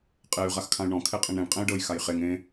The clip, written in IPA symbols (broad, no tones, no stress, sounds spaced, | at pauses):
qʼ e y̯ ʁ a x kʰ ã y̯ ɳ ɔ̃ kʰ e qʼ ẽ ɳ ɾ ẽ ɳ qʼ ẽ y̯ ɖ ɤ j x a j χ e ŋ ẽ